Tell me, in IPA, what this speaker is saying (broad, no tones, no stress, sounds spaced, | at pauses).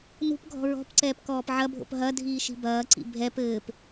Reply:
n ṳ p ɡʱ ɔ̤ ɹ ɔ̤ p ǀ ɛː p k ɔː p ʕ ɐ bʱ o̰ p ɦ ɐ dʱ iː ʃ i̤ b ɐː ǀ ḭ bʱ ɛ p ɘː p